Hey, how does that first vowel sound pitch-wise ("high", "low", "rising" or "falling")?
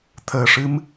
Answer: low